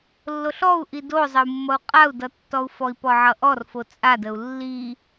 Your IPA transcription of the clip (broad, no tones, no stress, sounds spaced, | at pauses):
lː o ɬ ɔ u̯ ʔ i d o zˤ ə u̯ mː ʌ u̯ qʼ a u̯ d ʌ tː ɔ u̯ f ɔ i̯ p ɔ ʕ ʌ ʔ ɔ r f o t͡sʼ a d ə u̯ lː i